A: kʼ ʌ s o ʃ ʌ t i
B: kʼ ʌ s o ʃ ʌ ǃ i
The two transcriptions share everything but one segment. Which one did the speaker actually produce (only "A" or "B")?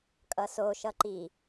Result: B